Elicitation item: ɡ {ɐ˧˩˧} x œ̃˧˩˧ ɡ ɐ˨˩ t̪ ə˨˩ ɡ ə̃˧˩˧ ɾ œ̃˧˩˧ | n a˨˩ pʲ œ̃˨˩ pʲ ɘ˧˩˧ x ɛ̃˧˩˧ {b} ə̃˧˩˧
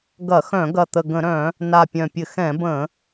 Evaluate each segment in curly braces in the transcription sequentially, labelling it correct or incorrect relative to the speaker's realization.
correct, correct

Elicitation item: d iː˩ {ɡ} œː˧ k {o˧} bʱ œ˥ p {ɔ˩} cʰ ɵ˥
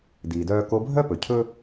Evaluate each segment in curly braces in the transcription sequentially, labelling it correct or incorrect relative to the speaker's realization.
incorrect: d, correct, incorrect: ɵ˩

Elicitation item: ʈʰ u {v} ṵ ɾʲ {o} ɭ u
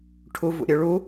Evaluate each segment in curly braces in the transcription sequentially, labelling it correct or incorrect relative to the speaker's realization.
correct, incorrect: ɵ

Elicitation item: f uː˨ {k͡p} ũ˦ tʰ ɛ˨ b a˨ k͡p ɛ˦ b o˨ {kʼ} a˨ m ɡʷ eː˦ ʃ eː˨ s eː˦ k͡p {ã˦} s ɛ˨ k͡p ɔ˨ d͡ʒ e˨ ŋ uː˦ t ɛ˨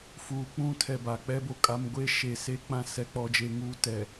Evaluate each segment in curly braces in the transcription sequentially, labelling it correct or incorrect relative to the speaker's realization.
correct, correct, correct

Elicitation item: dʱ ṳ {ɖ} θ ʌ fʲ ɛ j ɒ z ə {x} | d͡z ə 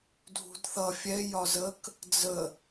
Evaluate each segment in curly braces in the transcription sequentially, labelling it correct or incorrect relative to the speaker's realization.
incorrect: d, incorrect: k

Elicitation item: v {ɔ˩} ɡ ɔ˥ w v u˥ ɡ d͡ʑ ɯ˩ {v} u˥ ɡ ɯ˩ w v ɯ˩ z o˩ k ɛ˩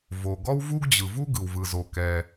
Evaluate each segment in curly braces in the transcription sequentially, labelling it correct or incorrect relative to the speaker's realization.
incorrect: o˩, correct

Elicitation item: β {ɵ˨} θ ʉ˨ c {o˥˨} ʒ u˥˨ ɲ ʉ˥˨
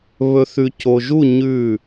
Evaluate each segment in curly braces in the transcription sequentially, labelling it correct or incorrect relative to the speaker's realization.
correct, incorrect: o˨

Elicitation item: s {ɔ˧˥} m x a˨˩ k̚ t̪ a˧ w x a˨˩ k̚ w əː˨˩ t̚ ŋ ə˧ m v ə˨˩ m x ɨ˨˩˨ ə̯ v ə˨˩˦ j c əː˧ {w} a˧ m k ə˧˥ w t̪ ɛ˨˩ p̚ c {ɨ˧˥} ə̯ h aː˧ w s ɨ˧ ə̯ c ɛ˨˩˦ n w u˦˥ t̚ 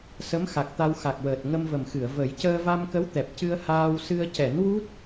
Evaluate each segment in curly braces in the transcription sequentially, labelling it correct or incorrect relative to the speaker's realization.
incorrect: ə˧˥, incorrect: v, incorrect: ɨ˧

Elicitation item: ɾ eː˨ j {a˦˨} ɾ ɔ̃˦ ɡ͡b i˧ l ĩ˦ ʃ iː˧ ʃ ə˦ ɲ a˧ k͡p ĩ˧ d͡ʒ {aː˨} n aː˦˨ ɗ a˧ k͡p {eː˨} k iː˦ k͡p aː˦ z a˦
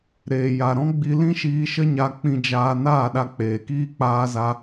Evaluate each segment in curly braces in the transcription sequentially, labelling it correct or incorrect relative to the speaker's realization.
incorrect: a˨, incorrect: aː˧, correct

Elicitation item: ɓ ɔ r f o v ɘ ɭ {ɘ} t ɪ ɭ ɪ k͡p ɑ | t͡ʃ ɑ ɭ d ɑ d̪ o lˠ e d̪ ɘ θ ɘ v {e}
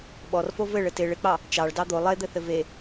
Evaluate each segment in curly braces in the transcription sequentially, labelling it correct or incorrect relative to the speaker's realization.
correct, correct

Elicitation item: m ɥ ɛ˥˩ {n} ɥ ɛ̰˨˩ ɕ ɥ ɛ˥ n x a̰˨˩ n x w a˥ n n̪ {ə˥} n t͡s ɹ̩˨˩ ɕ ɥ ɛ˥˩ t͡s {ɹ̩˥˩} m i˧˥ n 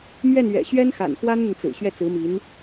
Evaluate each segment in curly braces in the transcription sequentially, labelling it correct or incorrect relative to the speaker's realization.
correct, incorrect: ə˨, incorrect: ɹ̩˧˥

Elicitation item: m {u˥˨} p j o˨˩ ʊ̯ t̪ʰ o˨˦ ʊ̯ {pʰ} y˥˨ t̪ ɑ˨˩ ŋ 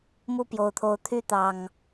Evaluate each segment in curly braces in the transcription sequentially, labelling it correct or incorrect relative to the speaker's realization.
correct, incorrect: t̪ʰ

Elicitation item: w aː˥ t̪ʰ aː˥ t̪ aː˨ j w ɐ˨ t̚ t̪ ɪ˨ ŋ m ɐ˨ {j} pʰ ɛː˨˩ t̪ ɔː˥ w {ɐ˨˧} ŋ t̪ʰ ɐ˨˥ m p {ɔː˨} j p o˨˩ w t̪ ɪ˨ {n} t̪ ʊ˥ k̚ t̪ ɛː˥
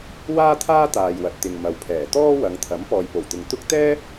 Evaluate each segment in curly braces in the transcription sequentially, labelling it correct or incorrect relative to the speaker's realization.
incorrect: w, correct, correct, incorrect: ŋ

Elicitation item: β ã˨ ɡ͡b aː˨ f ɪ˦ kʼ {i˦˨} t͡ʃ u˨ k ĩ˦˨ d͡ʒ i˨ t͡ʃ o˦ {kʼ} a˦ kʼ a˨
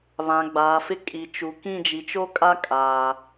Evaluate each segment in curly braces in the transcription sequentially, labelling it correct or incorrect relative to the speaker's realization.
incorrect: i˨, correct

